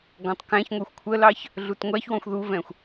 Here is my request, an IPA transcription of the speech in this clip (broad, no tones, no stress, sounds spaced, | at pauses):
ɡ ɔ̃ tˤ k æ̃ ç ŋʷ ə˞ xʷ kʷʰ ə l ɑ ç | ɮ u t ŋʷ æ ç w ɔ̃ xʷ ð u v ɛ̃ xʷ